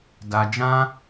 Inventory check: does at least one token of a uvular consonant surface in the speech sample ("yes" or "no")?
no